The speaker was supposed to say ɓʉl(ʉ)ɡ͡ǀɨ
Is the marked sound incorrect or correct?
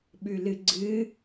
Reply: incorrect